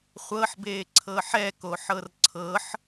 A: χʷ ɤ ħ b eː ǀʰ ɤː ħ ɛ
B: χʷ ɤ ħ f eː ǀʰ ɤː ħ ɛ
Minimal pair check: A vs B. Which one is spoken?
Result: A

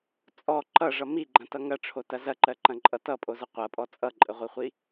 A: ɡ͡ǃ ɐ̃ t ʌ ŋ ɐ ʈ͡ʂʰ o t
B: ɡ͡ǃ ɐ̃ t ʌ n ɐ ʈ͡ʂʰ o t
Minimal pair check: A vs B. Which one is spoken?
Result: A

